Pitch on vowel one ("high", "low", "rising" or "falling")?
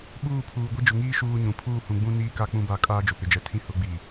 falling